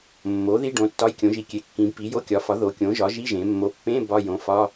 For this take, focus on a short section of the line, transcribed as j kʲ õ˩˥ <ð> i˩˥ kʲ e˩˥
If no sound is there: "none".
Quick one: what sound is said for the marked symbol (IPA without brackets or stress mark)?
ʒ